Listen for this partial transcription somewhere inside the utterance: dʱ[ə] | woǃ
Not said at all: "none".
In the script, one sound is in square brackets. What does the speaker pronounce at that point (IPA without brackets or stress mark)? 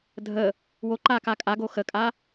ə